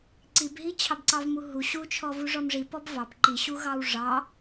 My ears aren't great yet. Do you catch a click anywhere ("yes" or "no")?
yes